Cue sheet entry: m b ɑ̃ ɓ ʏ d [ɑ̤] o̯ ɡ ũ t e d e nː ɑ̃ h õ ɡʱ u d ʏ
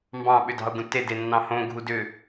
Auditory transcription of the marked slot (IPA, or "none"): ɑ̤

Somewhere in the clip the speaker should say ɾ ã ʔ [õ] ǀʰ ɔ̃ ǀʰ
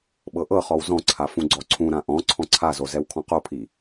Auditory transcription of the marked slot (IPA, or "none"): ɔ̃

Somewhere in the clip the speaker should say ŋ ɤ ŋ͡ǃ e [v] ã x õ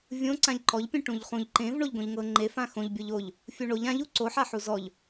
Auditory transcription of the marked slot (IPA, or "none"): f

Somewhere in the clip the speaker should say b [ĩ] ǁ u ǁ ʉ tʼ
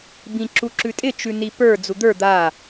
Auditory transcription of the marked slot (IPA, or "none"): ĩ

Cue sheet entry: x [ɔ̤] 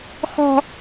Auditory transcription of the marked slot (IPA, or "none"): ɔ̤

